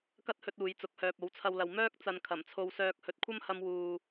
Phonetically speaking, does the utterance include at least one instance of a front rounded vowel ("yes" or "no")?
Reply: yes